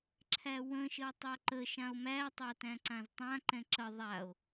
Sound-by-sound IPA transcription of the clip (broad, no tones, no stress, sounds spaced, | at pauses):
ǁʰ æ w ə̃ ʃ ə w tˤ æ ǃ ə ʃ ã o̯ m æ tˤ a t æ̃ ǀ ã z tˤ ã ǃ ɛ̃ ǁ ə ðˤ a o̯